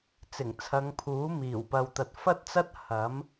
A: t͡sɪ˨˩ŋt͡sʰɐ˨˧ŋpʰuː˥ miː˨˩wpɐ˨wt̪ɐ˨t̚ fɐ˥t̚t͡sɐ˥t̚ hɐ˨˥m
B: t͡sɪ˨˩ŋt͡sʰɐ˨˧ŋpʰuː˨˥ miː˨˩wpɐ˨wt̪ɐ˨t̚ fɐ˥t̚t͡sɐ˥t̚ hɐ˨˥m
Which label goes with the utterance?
B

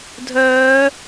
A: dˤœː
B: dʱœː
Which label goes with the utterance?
B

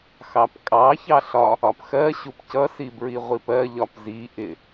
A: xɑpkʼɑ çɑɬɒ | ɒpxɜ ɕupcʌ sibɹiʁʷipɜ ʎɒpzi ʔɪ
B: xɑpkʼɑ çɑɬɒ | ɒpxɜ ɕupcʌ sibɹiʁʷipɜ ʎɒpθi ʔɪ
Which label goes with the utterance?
A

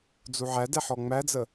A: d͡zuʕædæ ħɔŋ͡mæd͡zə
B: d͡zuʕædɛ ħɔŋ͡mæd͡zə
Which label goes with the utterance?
B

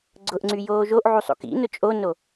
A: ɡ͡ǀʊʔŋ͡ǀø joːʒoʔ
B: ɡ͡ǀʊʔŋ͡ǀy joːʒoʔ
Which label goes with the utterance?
B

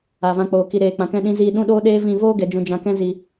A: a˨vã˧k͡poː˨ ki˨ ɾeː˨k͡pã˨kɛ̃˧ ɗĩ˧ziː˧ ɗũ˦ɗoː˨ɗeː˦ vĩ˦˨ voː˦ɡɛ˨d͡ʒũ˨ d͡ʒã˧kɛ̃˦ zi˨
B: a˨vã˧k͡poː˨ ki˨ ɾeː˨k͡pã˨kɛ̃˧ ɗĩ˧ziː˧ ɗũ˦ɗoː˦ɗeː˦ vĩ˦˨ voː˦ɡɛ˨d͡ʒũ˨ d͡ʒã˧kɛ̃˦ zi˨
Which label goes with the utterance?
B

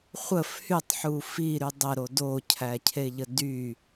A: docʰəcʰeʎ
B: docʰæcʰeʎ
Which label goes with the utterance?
B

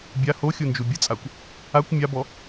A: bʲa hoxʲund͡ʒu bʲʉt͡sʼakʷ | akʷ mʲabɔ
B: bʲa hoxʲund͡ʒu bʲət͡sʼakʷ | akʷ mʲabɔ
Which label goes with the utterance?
B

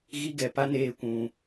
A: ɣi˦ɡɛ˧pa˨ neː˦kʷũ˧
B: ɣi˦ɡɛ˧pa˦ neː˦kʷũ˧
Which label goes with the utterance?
B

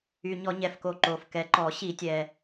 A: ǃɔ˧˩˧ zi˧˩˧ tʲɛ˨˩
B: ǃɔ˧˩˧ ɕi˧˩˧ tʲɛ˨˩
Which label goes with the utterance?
B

